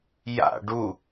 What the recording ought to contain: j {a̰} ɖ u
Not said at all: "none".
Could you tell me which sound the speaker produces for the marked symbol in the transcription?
a̰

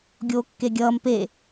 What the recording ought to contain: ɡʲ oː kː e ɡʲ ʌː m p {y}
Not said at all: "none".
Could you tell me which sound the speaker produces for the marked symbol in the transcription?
e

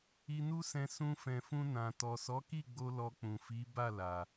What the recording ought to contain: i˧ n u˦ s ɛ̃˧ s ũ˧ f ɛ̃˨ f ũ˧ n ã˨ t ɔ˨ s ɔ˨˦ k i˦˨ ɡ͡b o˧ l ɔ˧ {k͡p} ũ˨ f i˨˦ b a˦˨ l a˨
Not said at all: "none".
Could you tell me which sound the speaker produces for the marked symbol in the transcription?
k͡p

